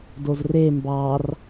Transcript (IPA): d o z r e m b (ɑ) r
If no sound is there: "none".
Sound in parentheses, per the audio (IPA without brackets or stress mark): ɑ